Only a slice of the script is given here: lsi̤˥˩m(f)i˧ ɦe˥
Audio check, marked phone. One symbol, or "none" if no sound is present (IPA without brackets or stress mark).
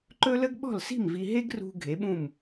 v